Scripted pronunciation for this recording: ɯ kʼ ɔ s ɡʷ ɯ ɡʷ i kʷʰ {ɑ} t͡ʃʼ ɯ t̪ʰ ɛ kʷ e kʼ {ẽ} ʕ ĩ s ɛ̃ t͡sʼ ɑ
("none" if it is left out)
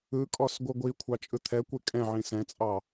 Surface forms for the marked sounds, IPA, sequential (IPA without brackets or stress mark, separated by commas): ɑ, ɛ̃